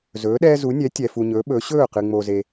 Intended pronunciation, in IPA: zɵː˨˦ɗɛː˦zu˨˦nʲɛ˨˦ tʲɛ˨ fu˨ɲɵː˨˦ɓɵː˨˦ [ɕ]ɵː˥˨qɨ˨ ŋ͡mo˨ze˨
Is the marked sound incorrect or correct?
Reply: correct